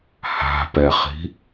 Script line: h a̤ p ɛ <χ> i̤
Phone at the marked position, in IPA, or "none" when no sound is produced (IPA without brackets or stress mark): χ